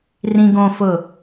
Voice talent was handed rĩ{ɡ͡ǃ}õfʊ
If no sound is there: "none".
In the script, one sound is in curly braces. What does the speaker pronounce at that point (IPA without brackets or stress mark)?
ɡ